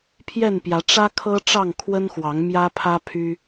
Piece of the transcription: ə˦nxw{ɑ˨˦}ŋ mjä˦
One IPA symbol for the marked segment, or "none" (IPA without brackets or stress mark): ɑ˨˦